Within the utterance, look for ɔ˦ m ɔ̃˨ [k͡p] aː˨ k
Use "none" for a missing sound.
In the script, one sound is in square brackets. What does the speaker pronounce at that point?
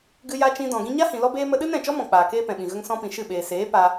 k͡p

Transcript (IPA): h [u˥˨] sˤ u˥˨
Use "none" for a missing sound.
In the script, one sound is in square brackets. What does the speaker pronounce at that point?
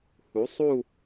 u˩˥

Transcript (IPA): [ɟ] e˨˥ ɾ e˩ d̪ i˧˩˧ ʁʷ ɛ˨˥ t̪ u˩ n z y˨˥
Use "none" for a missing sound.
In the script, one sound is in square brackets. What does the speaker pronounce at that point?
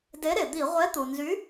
d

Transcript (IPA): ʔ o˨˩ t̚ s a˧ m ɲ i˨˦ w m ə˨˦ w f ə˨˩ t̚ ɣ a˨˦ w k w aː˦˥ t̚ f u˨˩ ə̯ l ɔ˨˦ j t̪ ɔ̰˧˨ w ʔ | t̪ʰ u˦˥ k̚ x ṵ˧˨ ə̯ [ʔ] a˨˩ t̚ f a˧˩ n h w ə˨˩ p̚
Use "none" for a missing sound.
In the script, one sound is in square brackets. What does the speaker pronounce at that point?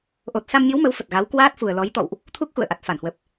ʔ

